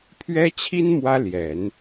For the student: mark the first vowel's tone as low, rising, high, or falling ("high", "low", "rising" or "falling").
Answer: high